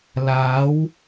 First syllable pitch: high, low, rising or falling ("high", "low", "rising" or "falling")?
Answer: rising